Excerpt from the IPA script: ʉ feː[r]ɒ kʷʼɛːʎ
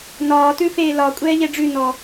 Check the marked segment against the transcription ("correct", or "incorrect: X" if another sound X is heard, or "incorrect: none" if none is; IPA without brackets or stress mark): incorrect: l